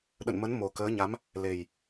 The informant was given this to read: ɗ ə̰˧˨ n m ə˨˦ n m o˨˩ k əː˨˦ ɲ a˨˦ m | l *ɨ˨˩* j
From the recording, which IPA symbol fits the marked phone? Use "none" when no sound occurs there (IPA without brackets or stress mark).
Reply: e˨˩